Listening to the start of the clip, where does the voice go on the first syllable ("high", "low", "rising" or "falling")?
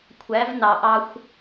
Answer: rising